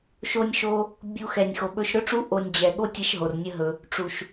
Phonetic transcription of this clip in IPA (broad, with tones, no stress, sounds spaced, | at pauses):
ʃ o˧ nʲ ʃ o˧ | bʲ u˧ x ɛ˨ nʲ x o˨ ɓ ɵ˧ ʃ ɾ ɵ˦ ʈ͡ʂ u˦ ʔ o˧ nʲ d͡ʑ ɛ˨ ɠ o˦ tʲ ɛ˧ ʃ ɦ o˨ r nʲ ə˦ ɦ ɵ˧ | ʈ͡ʂ u˨ ʃ